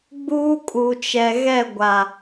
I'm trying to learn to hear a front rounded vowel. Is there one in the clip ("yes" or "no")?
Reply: no